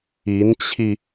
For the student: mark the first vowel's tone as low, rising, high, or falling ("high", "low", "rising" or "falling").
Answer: rising